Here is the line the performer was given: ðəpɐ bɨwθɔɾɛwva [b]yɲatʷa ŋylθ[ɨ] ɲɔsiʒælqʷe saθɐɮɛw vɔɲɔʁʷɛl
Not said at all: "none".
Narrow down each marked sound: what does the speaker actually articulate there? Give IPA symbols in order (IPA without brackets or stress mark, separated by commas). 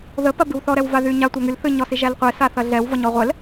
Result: ð, ɨ